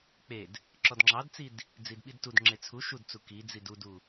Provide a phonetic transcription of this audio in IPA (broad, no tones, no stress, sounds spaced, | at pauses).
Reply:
k͡p e d | ǁ ɔ d ŋ͡ǁ ɑ d t͡s i d | d͡z i d ɓ i d t u d ŋ͡ǁ e t͡sʰ u ʃ u d t͡s u k i d͡z i d u d u